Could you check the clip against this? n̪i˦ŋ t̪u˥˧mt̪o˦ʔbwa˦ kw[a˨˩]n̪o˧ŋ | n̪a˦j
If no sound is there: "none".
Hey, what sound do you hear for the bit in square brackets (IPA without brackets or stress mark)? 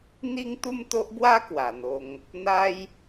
a˨˩